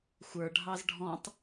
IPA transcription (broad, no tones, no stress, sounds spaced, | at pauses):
xʷ ə˞ ɖʱ ɑ z ɖʱ ɔ̃ tˤ